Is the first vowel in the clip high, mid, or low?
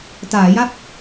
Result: low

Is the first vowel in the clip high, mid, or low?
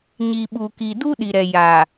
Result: high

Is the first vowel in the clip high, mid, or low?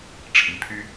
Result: high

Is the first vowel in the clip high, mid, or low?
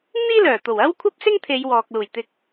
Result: high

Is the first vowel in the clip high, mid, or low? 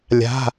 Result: low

